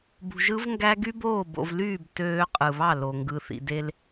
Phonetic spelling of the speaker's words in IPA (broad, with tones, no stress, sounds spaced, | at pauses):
b ṳ˨ ʒ ɯ˦ v ŋ ɡ æ˦ ɡ y˦ b oː˦˨ b o̰˨ v l yː˦˨ b t øː˦ qʼ ɯ˨ β ɑ˦˨ l o˨ ŋ ɡ ɯ˨ θ ḭ˨ d e˦ l